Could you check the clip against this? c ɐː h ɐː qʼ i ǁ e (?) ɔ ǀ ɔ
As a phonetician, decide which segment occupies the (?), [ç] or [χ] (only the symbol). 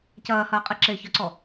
ç